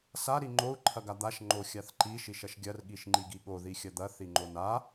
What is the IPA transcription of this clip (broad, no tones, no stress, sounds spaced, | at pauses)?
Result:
s a ɾ i ŋ͡ǃ o u̯ ǃʰ ɐ ɡ a d̪ a ʃ ŋ͡ǃ o xʲ a θ ǃ i ʃ i ʃ ɐ ʃ ɡʲ ɐ r ɠ i ʃ ŋ͡ǃ i ɡ i ɠ o ð i xʲ ɐ d̪ ɐ θ i ŋ͡ǃ o n a